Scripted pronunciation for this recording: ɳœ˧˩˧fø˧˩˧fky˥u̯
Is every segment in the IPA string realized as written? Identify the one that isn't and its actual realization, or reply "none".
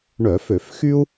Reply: k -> x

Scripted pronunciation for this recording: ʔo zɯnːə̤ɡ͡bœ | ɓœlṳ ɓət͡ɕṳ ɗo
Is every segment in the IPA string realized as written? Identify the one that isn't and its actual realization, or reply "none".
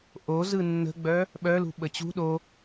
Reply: none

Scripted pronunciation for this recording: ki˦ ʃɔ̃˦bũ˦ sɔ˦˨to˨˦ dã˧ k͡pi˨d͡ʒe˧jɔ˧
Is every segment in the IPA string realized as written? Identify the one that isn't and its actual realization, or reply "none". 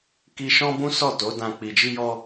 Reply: e˧ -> i˧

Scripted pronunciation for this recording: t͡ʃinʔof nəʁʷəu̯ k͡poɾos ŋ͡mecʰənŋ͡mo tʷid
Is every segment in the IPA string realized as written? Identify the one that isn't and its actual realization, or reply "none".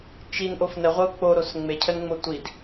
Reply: none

